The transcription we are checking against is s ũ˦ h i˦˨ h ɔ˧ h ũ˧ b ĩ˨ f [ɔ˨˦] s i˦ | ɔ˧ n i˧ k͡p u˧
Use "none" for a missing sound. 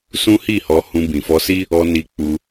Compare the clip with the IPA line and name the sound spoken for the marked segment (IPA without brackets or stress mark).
ɔ˧